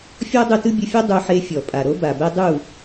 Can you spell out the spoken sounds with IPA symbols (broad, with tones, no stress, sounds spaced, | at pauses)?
fʲ ɔ˦ dˤ ɯ˧ t ɯ˦ bʲ ɯ˧ fʲ ɔ˦ dˤ u˧ ħ e˧ fʲ ɔ˨ pʼ a˨ ɾ o˦ b a˨ b ɛ˦ dˤ u˦˨